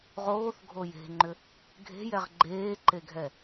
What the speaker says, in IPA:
ʁoːθɡʱo je̤ŋ͡ǃʏ | ɡʱe̤jɛʁ ɡ͡ǃeːǃeɡʱɛ

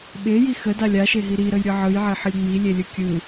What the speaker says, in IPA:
ɓeji xədalʲ aʃeɦi ɾiɾəjɾʲɯ ʕɯjʕeħəlʲ ŋ͡milʲelʲɯ kʲɯ

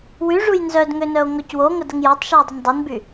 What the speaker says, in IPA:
wyʐuj nzœdŋønœo̯ ŋɔcwoŋə dəŋjɔtˤʃyo̯ dˤəndˤənby

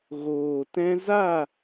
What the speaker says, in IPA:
ɣoː˨tɛ̃˧za˦˨

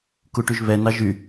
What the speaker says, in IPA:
kuʈyʒβɛ nɑʒy

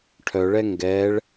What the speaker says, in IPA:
ʈʰœɭɛ ŋɡɛɭ

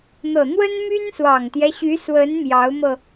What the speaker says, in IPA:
n̪ɤ˨˩n̪wə˥nmy˥n swɑ˨˩ŋt̪jɛ˦ɕy˧˥ swə˧˥n mjɑ˧˥ʊ̯mɤ˧

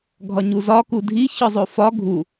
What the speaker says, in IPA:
ɡʱɒɲuzɒ kudʱi çɒzˤofɒ ɡʱu

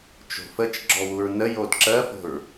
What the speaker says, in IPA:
t͡ʃo̤fət͡ʃ ɡ͡ǁɔwuɹnə jodǁɜfo̤ɹ

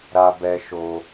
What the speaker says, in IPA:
ɾa˧bɛ˧ ʃo˧

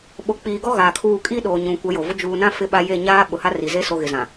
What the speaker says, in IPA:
ɓo˨k͡piː˨ɡɔ˦ ɣaː˨kʰuː˦˨ kʼiː˦ɗoː˨ ɲũ˨ kʷɛ˨˦jo˨vʊ˦ d͡ʒuː˨nã˦ fɪ˦ɓa˦ je˦˨ ɲaː˦ ɓʊ˨ha˦ ri˨ze˦ so˨ɣɪ˨zã˨

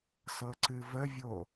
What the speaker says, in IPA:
sɤǀɨvəvʲo

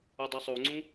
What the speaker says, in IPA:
adˤɯsˤoŋ͡ǀũ

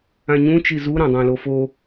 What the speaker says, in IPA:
ãɲũt͡ʃi zuɾãdˤãlo fo

